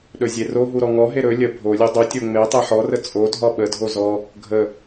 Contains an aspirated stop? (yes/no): no